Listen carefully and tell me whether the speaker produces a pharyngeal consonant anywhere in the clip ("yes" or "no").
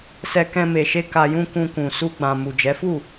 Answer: no